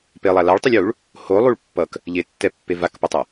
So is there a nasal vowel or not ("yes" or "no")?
no